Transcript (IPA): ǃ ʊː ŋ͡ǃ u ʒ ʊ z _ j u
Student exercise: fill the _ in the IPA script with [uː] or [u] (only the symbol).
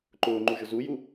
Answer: u